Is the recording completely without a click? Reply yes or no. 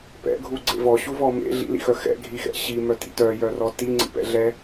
no